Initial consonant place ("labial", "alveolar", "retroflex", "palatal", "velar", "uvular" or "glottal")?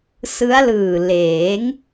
alveolar